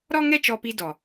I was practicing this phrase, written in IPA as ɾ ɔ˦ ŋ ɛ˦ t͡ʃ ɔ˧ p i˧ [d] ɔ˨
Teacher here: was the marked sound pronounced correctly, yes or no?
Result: yes